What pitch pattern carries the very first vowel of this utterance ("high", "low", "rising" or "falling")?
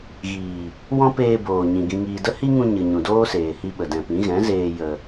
low